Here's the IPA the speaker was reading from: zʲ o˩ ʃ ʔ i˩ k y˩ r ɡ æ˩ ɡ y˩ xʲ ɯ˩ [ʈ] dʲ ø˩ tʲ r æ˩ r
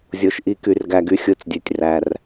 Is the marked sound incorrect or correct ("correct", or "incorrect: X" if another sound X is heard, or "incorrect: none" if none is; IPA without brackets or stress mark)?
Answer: incorrect: t͡s